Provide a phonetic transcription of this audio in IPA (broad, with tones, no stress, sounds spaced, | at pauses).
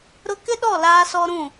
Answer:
ɾ ʊ˦ k ɪ˦ ɗ ɔ˦˨ l aː˦ s ɔ˦ ɾ ũ˦˨